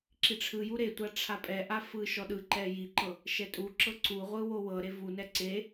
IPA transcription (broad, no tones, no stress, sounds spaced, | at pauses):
ǁ i ʈ͡ʂʰ ɯ j u ɾ e tʷ a ʈ͡ʂʰ a pʼ ɛ ʔ a f ɯ ʃ ɔ ɗ ɯ ǃ ɛ j i ǃ ɤ | ʃ ɛ tʼ u ǁ ɤ ǀ u ʁʷ ɯ w o w ɤ ɾ e v u n ɛ ǀ e